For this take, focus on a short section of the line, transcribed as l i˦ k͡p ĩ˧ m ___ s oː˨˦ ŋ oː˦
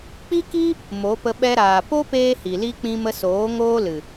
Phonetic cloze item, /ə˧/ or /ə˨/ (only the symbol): ə˧